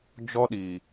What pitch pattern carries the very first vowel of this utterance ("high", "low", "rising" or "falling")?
high